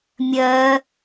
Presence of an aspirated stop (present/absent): absent